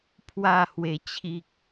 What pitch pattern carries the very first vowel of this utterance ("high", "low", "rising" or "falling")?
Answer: falling